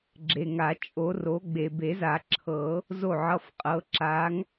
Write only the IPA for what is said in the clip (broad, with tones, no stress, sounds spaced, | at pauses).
ɡ͡ǁ e˨ ŋ a˨˩˦ t͡ʃʼ o˨˥ r o˨˥ ɡ͡b e˨ b e˨˩˦ z a˨˩˦ ǁʰ ɤ˨˩˦ | z o˥˩ ʕ ʌ˧˥˧ f qʼ ɤ˨˥ ǁ a˨˥ ŋ